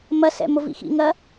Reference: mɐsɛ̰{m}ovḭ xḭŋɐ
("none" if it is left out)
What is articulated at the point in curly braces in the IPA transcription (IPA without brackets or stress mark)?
m